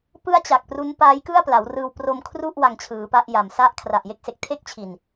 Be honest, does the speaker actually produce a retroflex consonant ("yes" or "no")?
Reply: no